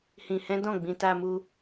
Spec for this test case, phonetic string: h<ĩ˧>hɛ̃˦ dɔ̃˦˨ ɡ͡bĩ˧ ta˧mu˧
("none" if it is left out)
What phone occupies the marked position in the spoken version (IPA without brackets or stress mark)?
ĩ˧